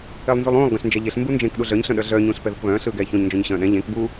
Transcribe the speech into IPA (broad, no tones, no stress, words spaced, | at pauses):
elˠnzulˠũːlˠ ɡœ̃ɬnd͡ʒɛʎeɬ mbund͡ʒẽk ɗuɮœɲ ɬœ̃ɗœɮœː ɲũːɬpɛðɯkβœ̃ː ɬɯːɡɛːçõɲ nd͡ʒõɲɕœ̃ːɗɛ̃ ʎẽk bu